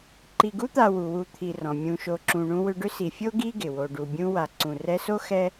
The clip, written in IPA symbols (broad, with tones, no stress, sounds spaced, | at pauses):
ǃ i˨ ɡ u˦ t̪ a˨ w u˩ w u˨ t̪ʰ i˨ r ɔ̃˩ mʲ ũ˨ ʃ o˨ ǁ ũ˨ ɳ ũ˦ w ʏ˦ ɖ ʏ˦ s i˨ fʲ o˥ ɡ i˥ ɡ ɪ˩ w o˨ ɖ u˨ bʲ ũ˦ w a˨ ǀ ũ˨ r ɛ˦ s o˥ x ɛ˥